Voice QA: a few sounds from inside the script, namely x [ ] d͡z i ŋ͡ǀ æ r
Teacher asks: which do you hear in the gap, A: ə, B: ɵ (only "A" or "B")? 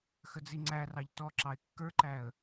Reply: A